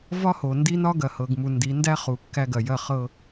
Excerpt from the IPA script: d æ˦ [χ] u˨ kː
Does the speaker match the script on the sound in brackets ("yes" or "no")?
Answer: yes